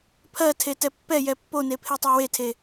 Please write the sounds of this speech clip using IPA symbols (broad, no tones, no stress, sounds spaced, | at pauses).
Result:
pʰ ɜ tʰ e t ɛ pː ɛ j ɛ pː o n e pʰ e tˤ ɛ w e tʰ e